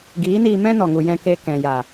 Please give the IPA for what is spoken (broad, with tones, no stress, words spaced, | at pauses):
ɡiː˨˦niː˧ mɛ̃˦ nɔ˨ŋu˨ jɛ̃˧ke˧ kɛ̃˨ja˨